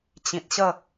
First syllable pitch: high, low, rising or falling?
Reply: low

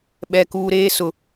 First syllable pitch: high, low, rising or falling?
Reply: high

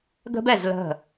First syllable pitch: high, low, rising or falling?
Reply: high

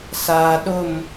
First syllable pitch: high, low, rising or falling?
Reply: low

